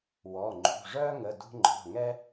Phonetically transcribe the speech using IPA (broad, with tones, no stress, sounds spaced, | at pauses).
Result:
w ɔ˩˧˩ ŋ͡ǃ ṳ˩˧˩ ʐ œ˥ ŋ ə˩˧˩ d ṳ˧ ŋ͡ǃ ɔ̤˩˧˩ ŋ ɛ˥